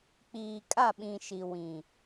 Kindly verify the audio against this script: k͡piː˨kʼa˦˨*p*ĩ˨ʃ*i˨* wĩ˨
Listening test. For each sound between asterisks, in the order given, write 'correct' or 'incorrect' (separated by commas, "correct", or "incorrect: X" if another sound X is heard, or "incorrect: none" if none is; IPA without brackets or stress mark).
incorrect: ɓ, correct